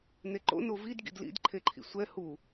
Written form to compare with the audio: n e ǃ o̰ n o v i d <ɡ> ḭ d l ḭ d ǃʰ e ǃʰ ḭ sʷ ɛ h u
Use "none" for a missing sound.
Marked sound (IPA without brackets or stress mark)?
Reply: ɡ